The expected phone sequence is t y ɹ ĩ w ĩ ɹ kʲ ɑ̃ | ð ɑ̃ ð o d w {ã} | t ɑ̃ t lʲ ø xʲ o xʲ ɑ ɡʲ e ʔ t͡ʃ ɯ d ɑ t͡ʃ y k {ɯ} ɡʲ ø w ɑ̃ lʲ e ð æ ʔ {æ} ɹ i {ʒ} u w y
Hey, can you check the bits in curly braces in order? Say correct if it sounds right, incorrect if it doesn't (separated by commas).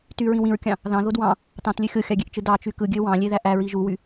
incorrect, correct, correct, correct